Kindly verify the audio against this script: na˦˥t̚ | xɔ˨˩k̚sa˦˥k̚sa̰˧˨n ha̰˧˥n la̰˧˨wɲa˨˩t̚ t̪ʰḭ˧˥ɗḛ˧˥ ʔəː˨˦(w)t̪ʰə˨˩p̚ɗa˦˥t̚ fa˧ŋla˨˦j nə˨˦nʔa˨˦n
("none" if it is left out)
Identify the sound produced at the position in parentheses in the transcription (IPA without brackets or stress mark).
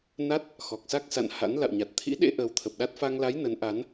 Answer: w